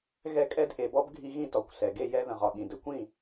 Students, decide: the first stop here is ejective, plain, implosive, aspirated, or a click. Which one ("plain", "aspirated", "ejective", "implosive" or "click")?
ejective